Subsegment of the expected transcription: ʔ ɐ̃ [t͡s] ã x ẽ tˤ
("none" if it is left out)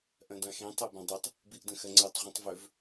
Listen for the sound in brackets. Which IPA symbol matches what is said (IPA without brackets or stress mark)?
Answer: d